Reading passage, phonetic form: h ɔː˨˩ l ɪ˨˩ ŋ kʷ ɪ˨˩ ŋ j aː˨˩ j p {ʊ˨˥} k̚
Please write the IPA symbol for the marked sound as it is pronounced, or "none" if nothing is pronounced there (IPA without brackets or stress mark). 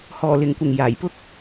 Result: ʊ˥